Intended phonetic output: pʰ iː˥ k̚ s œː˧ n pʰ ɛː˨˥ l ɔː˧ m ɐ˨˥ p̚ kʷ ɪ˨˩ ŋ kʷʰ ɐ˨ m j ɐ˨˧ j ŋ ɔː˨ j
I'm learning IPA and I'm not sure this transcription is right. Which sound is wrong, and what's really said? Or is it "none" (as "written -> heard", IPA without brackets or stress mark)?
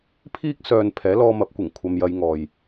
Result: none